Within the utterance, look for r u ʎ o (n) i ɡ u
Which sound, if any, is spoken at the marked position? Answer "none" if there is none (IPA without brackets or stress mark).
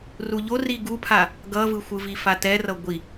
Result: r